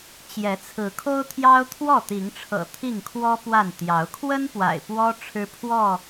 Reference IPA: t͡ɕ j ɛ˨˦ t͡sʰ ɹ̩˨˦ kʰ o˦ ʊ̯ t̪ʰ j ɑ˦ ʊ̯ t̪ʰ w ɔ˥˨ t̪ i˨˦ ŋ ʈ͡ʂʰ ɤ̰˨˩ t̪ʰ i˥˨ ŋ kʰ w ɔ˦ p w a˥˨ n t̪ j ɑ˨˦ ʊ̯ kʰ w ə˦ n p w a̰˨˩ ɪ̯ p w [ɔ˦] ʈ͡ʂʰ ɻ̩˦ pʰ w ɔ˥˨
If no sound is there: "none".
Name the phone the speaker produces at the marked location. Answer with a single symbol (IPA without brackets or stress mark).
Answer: ɔ˦